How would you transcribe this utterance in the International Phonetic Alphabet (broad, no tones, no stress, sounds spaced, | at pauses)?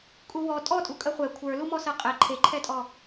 kʼ u w ɔ tʼ ɔ tʼ u kʼ ɜ χʷ ɛ kʷʰ ə˞ l u m ɔ s ɜ qʼ ɛ ǃʰ e ǃʰ ɛ tʼ ɔ